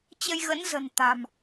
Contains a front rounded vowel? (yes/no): no